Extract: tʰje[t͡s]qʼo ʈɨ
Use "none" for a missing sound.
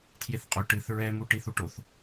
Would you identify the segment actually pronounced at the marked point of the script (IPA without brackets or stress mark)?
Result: θ